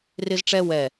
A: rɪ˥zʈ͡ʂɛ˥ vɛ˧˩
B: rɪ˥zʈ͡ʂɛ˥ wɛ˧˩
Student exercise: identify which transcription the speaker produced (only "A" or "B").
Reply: B